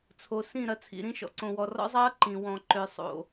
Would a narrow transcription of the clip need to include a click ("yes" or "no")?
yes